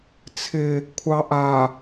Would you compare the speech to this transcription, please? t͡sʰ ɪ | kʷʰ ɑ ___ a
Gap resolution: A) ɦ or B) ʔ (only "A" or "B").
B